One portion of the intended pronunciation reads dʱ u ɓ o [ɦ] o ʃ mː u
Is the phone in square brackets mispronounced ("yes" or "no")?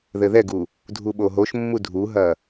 no